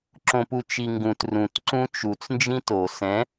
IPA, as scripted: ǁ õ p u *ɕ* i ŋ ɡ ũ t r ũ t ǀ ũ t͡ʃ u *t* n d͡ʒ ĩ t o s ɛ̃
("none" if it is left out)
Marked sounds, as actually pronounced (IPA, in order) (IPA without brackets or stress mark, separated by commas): t͡ʃ, t͡s